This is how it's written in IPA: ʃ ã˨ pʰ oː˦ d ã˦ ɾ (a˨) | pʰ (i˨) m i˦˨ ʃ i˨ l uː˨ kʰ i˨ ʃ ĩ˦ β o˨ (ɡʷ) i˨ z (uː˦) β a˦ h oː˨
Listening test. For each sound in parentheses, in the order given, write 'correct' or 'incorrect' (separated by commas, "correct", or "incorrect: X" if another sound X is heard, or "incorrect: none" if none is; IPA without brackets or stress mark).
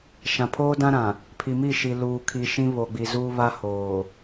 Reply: incorrect: ã˨, correct, incorrect: ɡ͡b, correct